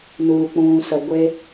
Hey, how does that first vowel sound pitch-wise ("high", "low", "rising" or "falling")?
low